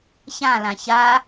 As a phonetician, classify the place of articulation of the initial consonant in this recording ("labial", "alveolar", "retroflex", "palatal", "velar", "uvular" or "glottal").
palatal